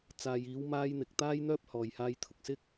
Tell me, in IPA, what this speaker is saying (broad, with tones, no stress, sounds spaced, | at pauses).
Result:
t͡s aː˨ j iː˨˧ w m aː˧ j n̪ ɪ˨ k̚ t̪ aː˧ j n̪ œː˧ p̚ h ɔː˨ j h aː˧ j t̪ʰ ʊ˨ k̚ s ɪ˥ k̚